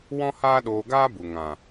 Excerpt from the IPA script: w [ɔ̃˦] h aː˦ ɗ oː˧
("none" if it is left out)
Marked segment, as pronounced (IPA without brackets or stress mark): ɔ̃˦